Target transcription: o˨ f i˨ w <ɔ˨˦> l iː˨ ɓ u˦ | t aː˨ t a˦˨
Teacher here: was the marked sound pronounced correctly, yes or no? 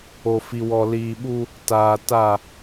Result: no